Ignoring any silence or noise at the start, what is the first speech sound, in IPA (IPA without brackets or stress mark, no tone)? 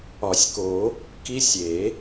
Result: ɒ